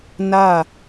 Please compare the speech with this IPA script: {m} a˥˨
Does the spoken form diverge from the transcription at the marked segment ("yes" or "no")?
yes